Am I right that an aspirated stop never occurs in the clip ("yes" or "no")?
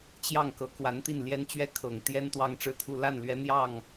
no